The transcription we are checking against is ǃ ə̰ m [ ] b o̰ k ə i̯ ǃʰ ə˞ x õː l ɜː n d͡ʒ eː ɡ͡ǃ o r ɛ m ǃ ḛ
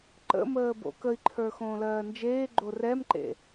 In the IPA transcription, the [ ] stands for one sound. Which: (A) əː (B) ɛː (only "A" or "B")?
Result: A